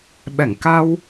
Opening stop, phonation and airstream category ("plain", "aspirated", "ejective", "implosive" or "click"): implosive